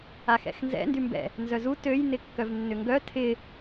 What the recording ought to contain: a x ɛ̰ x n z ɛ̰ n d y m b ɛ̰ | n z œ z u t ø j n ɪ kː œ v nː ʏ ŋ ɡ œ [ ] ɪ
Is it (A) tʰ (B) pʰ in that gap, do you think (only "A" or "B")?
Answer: A